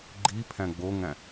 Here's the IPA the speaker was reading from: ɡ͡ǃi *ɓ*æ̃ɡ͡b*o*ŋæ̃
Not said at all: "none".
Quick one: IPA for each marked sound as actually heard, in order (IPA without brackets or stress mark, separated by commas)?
pʰ, o